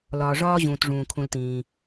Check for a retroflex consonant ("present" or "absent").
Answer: present